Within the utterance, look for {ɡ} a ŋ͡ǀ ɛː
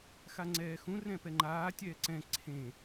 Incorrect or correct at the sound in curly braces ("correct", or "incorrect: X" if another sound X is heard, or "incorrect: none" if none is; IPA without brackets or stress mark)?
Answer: incorrect: x